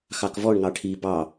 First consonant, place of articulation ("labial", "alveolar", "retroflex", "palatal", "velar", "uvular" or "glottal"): velar